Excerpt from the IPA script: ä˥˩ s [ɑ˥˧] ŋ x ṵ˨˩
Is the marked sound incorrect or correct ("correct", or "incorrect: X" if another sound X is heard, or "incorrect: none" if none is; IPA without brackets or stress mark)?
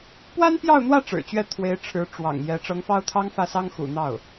incorrect: ɑ˥